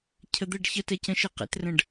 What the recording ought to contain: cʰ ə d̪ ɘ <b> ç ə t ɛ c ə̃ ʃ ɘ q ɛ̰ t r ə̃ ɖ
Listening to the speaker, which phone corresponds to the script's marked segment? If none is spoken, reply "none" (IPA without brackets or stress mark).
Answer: ɖ